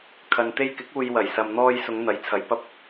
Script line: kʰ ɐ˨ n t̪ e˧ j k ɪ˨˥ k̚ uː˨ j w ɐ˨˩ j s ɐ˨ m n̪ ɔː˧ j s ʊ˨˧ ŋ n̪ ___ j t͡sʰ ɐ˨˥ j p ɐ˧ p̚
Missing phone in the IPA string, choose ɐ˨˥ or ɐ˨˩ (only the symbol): ɐ˨˥